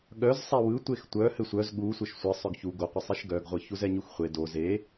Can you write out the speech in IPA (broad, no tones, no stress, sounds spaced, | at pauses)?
ɠ œ z sˤ e w ɯ tʷ e x tʷ œ h ɘ sʷ œ z ɠ u sʷ ɘ ʃ sʷ ɘ sˤ œ ɡ ç u ɡ o qʷ ɯ sˤ e ʃ ɡ œ ɡ ʁʷ ɯ ç u z ɛ ɲ u x χʷ e d o z e